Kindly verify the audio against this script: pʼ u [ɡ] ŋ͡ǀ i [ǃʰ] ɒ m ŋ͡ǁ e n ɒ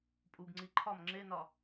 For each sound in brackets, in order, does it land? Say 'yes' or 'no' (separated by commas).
yes, yes